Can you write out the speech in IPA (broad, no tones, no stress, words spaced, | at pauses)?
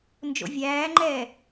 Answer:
nd͡ʒo̰vʲæːŋ͡ǃɛː